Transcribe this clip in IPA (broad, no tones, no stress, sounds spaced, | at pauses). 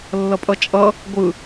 lː ʌ pʼ ʌ t͡ʃʼ ʌ | ɡʷ ɯ